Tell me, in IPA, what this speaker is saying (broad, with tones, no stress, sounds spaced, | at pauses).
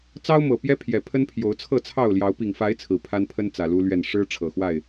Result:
t͡s ɑ˦ ʊ̯ m ɤ˨˩ p j ɛ˦ pʰ j ɛ˨˩ pʰ ə˦ n pʰ j o˨˦ ʊ̯ t͡sʰ ɤ˥˨ t͡sʰ ɑ˥˨ ʊ̯ l j ɑ˨˦ ʊ̯ p i˨˩ ŋ f a˨˦ ɪ̯ t͡sʰ ɹ̩˨˩ pʰ a˦ n pʰ ə˦ n t͡s ä˨˩ l u˦ l ɥ ɛ˥˨ n ʂ ɻ̩˦ ʈ͡ʂʰ ɤ˨˩ x w a˥˨ ɪ̯